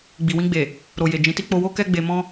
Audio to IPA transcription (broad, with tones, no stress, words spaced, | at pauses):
ɡ͡bi˨wĩ˧ɡ͡be˨ | ɾo˨je˨ d͡ʒĩ˨˦ti˦ k͡po˧wo˦ kɛ˦ɡ͡be˧ mɔ̃˦